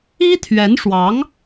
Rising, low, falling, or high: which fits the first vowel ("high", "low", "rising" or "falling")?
high